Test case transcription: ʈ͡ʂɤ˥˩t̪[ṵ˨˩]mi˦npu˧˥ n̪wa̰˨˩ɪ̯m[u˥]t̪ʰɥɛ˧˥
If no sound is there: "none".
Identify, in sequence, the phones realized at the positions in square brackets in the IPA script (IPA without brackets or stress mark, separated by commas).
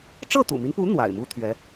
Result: ṵ˨˩, u˥